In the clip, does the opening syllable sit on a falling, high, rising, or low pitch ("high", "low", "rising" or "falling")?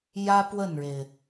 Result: high